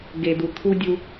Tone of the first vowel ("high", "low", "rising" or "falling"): low